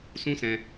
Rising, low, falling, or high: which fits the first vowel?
high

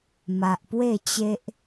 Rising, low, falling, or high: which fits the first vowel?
low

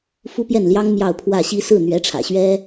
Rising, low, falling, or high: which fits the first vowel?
high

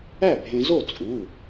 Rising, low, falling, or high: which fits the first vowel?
falling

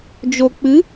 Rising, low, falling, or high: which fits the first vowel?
low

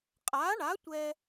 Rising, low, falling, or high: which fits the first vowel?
rising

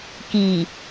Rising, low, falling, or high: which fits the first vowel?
low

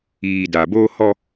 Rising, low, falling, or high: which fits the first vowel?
low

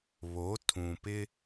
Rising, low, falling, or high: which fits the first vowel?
rising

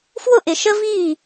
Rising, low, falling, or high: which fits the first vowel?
falling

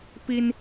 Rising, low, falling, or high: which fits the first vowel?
high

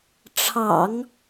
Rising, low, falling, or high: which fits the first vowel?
low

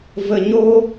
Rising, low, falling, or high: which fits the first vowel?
low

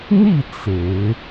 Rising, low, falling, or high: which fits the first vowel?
falling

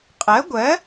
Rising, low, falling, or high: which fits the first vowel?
rising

